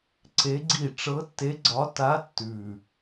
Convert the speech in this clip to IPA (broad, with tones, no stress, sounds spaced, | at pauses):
ǀ e˧˥ ɡ͡ǀ i˥˩ ʈ͡ʂ ɤ˧˥ tː e˧˥ ɡ͡ǀ ɒ˧˥ t a˧˥ tː ʉ˨˩